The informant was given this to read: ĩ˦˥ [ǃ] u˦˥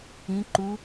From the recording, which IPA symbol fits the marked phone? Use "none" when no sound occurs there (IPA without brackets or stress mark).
ǃ